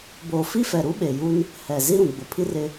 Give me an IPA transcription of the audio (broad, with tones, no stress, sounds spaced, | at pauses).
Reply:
b oː˨ f i˦ f ɛ˨ ɾ u˦ ɓ e˨ j u˦ n | h ɛ˨ z i˦ ɾ ũ˨ ɡ͡b ʊ˨˦ pʰ i˦ r ɪ˦